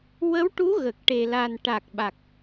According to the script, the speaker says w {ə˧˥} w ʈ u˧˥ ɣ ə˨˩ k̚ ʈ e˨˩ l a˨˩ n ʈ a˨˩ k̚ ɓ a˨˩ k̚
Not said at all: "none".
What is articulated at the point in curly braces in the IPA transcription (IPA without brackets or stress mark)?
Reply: ə˧˥